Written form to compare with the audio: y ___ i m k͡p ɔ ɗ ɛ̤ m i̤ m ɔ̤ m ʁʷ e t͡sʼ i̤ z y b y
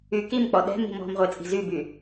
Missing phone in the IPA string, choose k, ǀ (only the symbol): k